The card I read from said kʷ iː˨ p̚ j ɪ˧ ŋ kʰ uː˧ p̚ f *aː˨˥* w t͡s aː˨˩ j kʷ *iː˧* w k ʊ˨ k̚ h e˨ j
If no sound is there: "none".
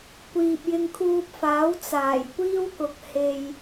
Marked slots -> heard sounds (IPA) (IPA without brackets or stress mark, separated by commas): aː˨˥, iː˥